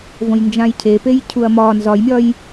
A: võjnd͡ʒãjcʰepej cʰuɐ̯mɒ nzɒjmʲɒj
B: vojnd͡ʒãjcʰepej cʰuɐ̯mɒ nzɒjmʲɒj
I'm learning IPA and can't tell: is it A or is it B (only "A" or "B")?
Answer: A